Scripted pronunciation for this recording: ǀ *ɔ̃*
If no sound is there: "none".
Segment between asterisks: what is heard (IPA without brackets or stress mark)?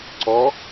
ɔ